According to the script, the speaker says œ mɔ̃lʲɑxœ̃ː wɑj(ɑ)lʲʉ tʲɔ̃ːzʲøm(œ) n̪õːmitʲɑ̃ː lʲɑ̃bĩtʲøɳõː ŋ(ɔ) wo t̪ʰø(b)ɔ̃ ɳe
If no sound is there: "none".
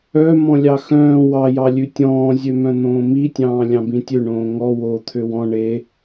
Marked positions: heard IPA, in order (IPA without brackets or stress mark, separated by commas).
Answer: ɑ, œ̃, ɔ, w